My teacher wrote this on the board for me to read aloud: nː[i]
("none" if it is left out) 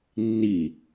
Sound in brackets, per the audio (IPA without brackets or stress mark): i